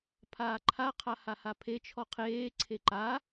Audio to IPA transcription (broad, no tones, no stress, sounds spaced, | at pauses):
pʰ aː ǃʰ a qʰ a h a h a pʰ e t͡ʃʰ ɔ qʰ eː ǀʰ e ǃ a